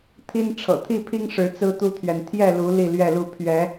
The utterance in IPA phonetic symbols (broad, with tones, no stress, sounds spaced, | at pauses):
t̪ʰ i˦ n ʈ͡ʂʰ ɤ̰˨˩ t̪ʰ i˥˨ pʰ i˦ ŋ ʂ ɻ̩˨˦ t͡s ɹ̩˦ t̪ u˦ t̪ʰ ɥ ɛ˨ n t̪ʰ j ɛ˥˨ l u˨˦ l i˥˨ l ɥ ɛ˥˨ l u˥˨ pʰ ɥ ɛ˨˦